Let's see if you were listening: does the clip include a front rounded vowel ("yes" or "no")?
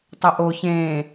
no